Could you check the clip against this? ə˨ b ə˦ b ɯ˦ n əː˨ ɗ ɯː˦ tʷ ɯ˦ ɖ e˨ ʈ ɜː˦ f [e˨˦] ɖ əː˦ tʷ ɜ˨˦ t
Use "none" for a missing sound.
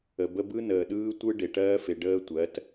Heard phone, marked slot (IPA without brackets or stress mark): e˨